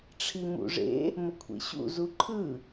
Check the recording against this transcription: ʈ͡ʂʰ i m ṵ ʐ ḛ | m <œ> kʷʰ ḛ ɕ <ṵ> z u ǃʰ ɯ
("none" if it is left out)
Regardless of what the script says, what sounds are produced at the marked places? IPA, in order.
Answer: ə, ṵ

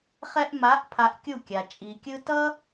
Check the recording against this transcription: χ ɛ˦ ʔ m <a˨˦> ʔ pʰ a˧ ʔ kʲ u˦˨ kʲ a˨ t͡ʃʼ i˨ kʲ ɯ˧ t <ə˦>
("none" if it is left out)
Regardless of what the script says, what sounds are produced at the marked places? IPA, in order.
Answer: a˨˦, ʌ˦

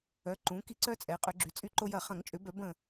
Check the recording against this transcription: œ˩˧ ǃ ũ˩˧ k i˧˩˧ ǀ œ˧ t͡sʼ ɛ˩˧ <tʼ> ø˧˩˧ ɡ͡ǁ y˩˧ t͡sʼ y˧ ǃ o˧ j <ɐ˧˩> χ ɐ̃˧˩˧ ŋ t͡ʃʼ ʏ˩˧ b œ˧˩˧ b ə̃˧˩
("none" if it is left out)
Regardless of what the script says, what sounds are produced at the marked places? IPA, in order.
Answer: qʼ, ɐ˧˩

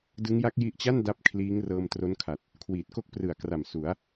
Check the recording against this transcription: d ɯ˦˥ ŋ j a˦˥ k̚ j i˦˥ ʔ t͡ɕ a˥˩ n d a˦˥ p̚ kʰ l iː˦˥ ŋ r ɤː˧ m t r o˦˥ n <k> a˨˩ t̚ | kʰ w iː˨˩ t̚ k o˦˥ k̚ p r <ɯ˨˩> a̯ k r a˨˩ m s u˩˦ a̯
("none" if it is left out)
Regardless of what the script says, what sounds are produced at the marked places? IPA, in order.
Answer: kʰ, ɯ˨˩

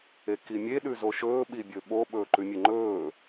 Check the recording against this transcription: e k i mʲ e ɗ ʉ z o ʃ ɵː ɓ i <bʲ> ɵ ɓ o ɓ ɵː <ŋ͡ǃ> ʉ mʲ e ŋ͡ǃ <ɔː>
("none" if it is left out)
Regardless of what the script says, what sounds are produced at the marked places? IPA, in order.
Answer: bʲ, ǃ, ɵː

